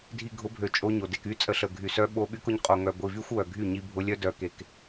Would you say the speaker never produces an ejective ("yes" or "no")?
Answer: no